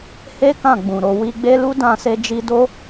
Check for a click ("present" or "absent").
absent